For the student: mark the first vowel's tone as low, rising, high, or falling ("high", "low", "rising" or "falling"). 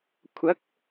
rising